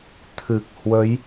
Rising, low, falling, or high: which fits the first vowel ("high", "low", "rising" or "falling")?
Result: low